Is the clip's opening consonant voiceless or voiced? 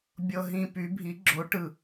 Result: voiced